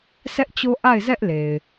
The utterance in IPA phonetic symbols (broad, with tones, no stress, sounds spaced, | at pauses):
s ɛ˦ ʔ t͡ɕ o˦ ʔ a˦˨ ɪ̯ z ɛ˦ ʔ l e˨ ɪ̯